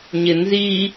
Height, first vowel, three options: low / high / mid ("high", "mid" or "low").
high